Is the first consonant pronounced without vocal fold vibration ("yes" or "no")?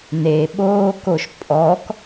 no